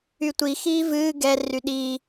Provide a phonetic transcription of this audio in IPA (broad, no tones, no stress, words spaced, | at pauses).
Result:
ytʷi xiːvɨː ɡɛ ryɗiː